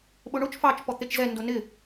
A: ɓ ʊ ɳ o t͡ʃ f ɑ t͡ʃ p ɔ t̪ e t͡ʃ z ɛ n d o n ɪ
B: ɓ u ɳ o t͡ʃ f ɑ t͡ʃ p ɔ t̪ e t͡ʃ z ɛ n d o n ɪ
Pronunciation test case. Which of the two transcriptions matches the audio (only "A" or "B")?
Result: A